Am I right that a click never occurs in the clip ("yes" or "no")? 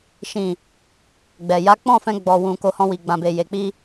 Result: yes